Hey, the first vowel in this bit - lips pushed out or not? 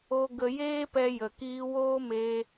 yes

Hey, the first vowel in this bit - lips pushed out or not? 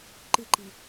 no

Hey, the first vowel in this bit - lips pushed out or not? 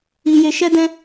no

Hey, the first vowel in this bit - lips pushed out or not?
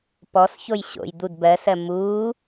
yes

